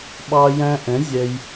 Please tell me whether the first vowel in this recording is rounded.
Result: no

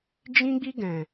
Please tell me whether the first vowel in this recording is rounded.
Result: no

